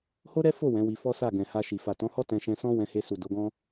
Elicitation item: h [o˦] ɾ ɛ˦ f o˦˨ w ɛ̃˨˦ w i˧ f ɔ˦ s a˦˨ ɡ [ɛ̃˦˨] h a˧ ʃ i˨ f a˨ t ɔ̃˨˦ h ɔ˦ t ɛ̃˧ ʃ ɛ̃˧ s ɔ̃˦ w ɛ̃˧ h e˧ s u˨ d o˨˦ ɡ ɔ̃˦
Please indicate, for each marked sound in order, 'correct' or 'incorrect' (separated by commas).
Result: correct, incorrect